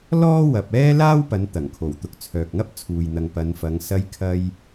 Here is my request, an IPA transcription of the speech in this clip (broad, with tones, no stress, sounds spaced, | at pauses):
l ɔː˥ w ɐ˨ p̚ ɛː˥ l aː˥ w p ɐ˨˧ n t̪ ɐ˨˩ ŋ kʰ o˨˩ w t̪ ʊ˨ k̚ t͡sʰ œː˨ k̚ ŋ ɐ˥ p̚ t͡sʰ uː˨ j n̪ ɐ˨ ŋ p ɐ˨˧ n f ɐ˨˧ ŋ s ɐ˧ j kʰ ɐ˧ j